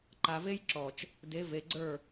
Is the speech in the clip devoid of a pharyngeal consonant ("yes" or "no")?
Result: yes